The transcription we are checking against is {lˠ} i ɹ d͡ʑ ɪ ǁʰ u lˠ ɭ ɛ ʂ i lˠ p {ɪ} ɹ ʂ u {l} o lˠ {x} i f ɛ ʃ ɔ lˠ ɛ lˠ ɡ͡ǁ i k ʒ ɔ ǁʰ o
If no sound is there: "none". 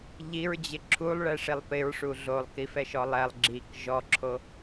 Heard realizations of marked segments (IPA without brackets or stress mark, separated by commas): ʎ, ɪ, ɮ, k